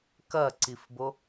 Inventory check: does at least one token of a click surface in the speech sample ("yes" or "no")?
yes